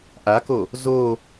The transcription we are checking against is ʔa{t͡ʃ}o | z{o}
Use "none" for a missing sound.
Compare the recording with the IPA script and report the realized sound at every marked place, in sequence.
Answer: k, o

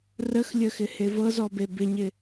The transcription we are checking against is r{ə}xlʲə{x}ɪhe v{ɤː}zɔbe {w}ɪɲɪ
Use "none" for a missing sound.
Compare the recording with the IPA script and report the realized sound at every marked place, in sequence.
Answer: ə, x, ɤ, b

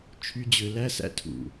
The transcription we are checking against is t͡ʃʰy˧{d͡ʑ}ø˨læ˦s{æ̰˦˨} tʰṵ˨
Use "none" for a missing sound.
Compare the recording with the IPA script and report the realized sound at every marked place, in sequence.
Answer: d͡ʑ, æ̰˧

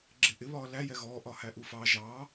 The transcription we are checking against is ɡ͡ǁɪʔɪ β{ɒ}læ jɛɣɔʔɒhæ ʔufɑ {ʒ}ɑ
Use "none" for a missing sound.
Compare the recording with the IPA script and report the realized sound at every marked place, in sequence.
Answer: ɒː, ʒ

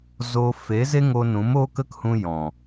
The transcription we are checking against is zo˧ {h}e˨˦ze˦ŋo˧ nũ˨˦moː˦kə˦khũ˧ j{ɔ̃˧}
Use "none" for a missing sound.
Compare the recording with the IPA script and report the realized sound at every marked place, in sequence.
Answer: f, ɔ̃˨

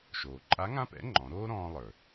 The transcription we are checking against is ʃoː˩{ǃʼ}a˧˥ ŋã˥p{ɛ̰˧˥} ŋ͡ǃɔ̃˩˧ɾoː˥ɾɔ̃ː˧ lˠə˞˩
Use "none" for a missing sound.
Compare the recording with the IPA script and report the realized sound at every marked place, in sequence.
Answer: ǃʼ, ɛ̰˧˥

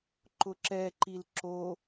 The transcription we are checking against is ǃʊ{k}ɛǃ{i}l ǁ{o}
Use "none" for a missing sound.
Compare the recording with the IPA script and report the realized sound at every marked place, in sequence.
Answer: ǁ, i, o

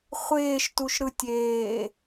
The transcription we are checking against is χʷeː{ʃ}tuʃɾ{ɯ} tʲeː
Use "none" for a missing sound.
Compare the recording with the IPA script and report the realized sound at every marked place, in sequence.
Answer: ʃ, ɯ

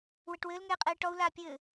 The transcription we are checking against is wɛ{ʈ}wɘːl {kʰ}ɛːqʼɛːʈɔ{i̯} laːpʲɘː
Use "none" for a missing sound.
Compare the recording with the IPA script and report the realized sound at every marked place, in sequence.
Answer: ʈ, ŋ, u̯

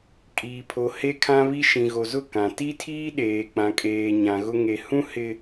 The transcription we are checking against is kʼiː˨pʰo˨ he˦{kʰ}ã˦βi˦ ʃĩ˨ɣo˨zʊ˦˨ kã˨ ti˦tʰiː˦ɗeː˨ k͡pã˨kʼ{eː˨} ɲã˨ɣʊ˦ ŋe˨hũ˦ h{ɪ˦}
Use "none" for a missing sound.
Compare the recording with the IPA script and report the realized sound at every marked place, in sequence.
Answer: kʰ, eː˨, ɪ˦

